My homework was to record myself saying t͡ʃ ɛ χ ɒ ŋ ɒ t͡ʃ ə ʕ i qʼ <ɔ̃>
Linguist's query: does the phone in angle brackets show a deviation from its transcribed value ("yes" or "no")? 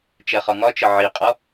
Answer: yes